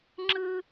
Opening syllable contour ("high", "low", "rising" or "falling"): high